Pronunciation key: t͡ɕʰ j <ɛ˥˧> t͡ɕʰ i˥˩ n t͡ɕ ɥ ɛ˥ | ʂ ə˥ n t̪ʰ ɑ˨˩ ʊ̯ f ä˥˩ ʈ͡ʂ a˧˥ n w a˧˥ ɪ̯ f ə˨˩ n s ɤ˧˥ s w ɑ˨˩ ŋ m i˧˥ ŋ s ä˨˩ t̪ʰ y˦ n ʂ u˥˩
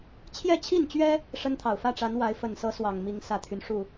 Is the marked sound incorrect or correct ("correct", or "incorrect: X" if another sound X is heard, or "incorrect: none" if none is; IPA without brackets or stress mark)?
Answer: correct